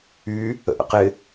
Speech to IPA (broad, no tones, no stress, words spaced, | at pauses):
y | ə̰ʔə̰qɪ